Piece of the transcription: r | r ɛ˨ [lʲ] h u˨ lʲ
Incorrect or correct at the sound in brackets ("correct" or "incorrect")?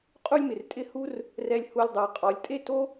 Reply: correct